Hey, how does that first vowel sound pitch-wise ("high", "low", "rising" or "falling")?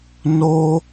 high